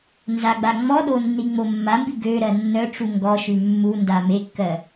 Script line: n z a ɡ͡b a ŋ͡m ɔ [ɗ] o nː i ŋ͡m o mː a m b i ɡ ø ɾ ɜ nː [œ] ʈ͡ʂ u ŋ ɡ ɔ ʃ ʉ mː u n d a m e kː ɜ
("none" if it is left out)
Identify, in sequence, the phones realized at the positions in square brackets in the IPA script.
ɗ, œ

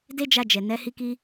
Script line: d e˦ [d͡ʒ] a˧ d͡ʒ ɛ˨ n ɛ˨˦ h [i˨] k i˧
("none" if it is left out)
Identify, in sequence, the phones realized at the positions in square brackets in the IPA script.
d͡ʒ, i˧

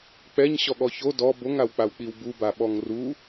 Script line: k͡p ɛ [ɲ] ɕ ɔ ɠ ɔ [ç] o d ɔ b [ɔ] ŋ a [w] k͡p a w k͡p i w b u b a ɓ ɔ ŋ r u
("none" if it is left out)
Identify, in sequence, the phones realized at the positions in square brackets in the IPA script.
ɲ, ç, o, w

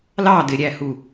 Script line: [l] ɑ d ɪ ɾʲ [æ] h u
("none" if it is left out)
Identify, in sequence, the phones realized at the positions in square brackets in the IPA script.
l, æ

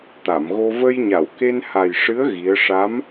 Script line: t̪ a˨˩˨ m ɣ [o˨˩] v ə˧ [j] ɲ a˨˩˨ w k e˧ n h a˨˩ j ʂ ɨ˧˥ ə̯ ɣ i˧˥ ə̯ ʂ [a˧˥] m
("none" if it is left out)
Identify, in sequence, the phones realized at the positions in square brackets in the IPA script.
o˧, j, a˧˥

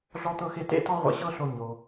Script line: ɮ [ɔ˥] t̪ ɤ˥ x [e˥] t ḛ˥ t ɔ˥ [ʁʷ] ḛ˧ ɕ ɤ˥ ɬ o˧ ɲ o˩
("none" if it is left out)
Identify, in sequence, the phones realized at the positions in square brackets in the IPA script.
ɔ˥, e˥, ʁʷ

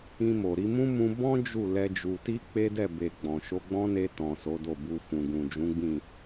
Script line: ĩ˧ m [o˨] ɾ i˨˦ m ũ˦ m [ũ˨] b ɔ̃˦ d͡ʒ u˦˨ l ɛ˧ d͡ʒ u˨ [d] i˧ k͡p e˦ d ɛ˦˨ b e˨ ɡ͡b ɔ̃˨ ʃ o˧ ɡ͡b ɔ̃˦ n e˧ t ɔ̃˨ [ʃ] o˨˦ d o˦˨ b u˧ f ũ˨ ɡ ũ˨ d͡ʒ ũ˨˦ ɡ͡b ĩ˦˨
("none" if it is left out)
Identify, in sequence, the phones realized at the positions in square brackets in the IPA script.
o˨, ũ˧, t, s

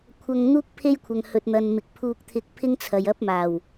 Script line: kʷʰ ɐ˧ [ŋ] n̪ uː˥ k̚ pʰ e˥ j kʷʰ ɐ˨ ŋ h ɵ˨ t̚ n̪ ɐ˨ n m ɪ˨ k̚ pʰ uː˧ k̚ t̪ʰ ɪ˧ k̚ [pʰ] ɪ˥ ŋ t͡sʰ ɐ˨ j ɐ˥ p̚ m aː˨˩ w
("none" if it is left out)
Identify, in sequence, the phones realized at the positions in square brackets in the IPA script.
ŋ, pʰ

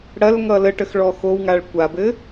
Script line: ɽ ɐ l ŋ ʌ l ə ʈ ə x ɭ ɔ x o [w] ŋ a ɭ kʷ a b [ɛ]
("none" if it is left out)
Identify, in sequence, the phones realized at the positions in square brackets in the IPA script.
w, ɘ

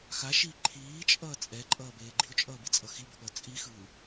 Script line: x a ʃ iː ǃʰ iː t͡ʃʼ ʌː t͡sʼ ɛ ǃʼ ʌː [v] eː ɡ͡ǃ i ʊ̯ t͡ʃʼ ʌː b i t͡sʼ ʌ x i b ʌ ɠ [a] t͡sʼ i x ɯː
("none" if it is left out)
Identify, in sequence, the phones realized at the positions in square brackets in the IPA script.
b, ʌ

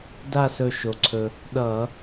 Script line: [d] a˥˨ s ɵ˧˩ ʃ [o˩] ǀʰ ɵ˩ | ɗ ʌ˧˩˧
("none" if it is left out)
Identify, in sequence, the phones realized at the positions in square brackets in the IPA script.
d, o˩

